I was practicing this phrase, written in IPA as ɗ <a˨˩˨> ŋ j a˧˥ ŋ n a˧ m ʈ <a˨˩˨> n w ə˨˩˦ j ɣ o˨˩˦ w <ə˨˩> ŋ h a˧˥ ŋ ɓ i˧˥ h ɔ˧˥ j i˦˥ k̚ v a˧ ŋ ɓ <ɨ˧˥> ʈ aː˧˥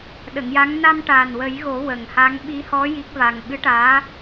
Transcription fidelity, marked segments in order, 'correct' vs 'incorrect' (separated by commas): incorrect, incorrect, correct, correct